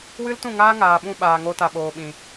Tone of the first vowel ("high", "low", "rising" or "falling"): high